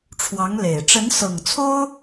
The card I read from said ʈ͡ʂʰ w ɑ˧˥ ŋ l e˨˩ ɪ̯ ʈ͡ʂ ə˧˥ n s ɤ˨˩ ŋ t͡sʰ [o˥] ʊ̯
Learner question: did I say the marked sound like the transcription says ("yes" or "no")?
yes